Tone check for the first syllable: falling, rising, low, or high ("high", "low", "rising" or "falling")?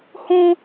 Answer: high